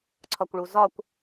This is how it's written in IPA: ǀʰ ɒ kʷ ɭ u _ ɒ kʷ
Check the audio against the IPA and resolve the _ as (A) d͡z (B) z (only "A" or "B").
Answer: B